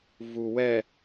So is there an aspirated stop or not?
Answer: no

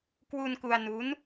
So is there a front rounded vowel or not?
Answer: no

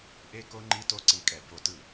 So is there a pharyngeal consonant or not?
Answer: no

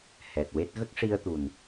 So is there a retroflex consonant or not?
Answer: yes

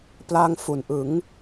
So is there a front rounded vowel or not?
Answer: no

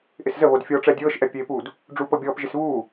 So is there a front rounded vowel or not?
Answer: no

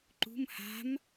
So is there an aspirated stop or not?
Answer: no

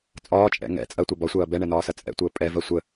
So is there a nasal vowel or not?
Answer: no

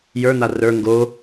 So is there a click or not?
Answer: no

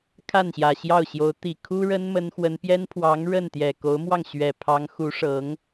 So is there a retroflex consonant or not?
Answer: yes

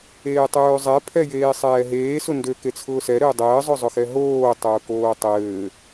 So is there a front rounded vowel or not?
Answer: yes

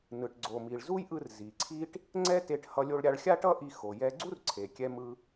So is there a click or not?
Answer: yes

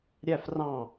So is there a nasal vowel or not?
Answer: yes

